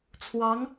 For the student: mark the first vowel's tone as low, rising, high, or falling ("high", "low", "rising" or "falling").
rising